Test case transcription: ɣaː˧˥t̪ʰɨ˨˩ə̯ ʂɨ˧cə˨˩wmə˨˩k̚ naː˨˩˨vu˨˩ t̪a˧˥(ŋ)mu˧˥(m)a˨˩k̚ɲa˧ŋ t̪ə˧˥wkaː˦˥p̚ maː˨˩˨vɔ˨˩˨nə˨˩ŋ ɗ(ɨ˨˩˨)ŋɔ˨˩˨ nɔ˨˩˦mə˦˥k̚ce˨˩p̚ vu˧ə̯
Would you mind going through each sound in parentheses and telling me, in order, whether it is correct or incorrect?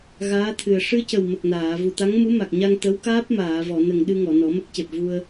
correct, correct, incorrect: ɨ˧

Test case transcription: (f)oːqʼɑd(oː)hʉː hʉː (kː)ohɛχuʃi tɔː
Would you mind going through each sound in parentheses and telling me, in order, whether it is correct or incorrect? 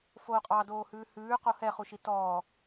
correct, correct, incorrect: q

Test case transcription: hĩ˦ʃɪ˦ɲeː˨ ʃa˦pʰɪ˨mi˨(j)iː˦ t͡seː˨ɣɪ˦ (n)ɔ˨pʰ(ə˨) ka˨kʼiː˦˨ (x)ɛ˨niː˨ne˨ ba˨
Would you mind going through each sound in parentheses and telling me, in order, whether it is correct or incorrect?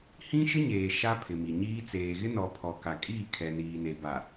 incorrect: ɲ, correct, incorrect: ɔ˨, incorrect: kʰ

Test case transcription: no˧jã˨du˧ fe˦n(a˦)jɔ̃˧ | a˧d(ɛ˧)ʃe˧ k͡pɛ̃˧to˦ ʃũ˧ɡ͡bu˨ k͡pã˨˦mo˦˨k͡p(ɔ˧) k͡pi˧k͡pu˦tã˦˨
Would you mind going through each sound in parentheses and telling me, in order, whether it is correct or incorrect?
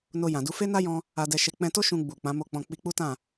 correct, correct, incorrect: ɔ̃˧

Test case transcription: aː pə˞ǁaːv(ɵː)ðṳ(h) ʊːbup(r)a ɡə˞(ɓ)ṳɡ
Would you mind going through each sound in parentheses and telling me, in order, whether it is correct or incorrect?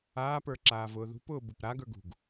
incorrect: ʊː, incorrect: p, incorrect: ɾ, incorrect: ɡ

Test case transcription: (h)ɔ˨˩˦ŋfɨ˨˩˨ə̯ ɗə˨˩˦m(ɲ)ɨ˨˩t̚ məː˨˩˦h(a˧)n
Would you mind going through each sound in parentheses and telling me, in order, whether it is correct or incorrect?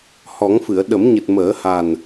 correct, correct, incorrect: a˨˩

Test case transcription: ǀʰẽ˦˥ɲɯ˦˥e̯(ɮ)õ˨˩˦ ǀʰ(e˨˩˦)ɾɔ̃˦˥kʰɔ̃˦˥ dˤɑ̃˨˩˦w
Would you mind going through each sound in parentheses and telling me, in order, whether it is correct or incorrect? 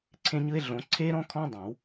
correct, incorrect: e˦˥

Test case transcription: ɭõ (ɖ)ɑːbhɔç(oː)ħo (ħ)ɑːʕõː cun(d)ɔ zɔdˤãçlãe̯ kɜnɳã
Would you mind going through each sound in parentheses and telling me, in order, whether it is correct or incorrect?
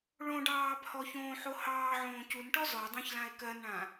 correct, incorrect: õː, incorrect: h, incorrect: ʈ

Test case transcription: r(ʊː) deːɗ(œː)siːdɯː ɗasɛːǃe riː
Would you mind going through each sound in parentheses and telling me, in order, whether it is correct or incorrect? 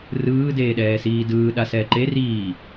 incorrect: ɯː, incorrect: ɛː

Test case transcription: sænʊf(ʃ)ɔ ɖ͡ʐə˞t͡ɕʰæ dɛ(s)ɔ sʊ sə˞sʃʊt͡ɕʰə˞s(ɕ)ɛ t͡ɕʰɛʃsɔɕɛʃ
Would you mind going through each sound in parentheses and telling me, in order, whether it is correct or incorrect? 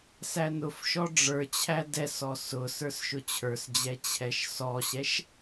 correct, correct, incorrect: d͡ʑ

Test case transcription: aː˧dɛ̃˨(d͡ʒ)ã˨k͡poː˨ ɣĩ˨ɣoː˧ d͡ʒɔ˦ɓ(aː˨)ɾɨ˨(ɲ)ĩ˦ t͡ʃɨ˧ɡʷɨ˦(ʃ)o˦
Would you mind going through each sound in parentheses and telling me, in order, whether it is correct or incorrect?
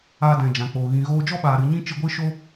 correct, correct, correct, correct

